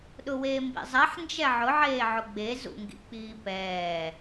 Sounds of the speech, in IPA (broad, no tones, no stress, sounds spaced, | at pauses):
ɗ ʊ w eː m b ḭ zˤ ɛ ħ n d͡ʒ ɛ ʕ ʊ ʕ eː ʕ ʊ ɡ͡b e z ṵ ŋ ɡ ḭ k͡p iː p ɛː